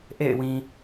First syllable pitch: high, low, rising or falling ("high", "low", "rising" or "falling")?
falling